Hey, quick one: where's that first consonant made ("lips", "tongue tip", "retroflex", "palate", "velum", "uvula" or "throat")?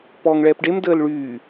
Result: lips